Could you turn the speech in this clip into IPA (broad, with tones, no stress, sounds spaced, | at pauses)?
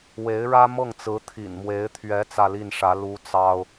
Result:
w e˧˥ ɪ̯ ɻ ä˥ m ɤ˥˩ ŋ t͡s ɹ̩˧˥ t̪ʰ ḭ˨˩ n m w e˧˥ ɪ̯ t̪ʰ ɥ ɛ˧˥ t͡s ä˥˧ l i˥˩ n ʂ ä˧˥ l u˥ t͡s ɑ˥ ʊ̯